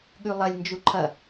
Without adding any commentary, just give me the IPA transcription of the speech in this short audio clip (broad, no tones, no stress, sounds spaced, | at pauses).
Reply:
ɠ ʉ lˠ ɐ lʲ n d͡ʒ u ǃʰ ɐ